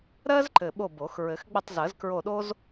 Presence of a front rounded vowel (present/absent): absent